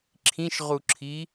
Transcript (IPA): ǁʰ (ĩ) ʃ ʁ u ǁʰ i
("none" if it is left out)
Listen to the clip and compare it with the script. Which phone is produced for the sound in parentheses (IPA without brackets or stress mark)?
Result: ĩ